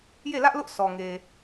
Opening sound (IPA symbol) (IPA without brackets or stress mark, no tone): j